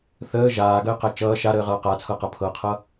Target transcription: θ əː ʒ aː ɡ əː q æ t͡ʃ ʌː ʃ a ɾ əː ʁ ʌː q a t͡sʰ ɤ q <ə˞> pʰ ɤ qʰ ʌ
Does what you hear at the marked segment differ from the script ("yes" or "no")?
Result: yes